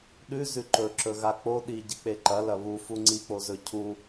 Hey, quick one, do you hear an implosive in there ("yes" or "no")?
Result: yes